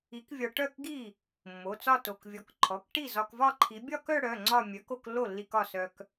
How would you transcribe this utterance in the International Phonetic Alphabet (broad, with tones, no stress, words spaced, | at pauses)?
i˨˥kvʲɒ˧ ʈœ˥˩kɡi˥˩ | mːo˩˧˩t͡sɒ˥˧to˩˧˩kvʲɔ˨˥k ǃʰɔ˩˧˩kʈi˥˩ zɒ˧kvɒ˥˧ǃʰi˨˥ bʲɒ˥˧kœ˥˧ɽœ˩˧˩ ŋ͡ǀɒ˥˧mʲœ˨˥k o˥˧klːo˥˩lːi˧k ɒ˥˩sœ˧k